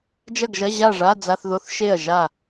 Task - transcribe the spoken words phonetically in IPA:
d͡ʒɐ˥˨ɡʒɐ˧˥˧ ʑa˥˨ʐa˧˥˧d͡za˧˥˧θðo˧˥˧θ ʃe˥˨ɐ̯ ʒa˥˨

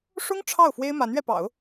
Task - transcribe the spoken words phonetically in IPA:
ʂʊ˥ŋ ʈ͡ʂʰɑ˥˩ʊ̯ fwe˥ɪ̯ma˧˥nɥɛ˧ pɑ̰˨˩˦ʊ̯

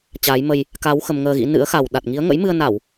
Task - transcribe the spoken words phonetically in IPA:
t͡ɕaː˨˦jmə˧j | ka˨˦w xə˧mŋəː˧ɣḭ˧˥ nɨ̰˧˥ə̯xa˨˩w ɗa˨˩t̚ŋi˨˦ə̯ ŋə̰˧˥jmɨ˧ə̯na˧˩˨w

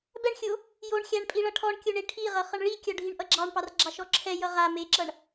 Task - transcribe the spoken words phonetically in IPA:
bɛɳxʲo | joɳ xʲaɳpʼiɭʌ ʈʰɔɳkʲoɳe ʈʰiʁʌχʌɳ ɭikʲɔɖʱiɳʔʌ ɡ͡ǁɑɳpɑrɡ͡ǁɑʃɔ ǁʰɛjʌ ʁa meǁʌɳ

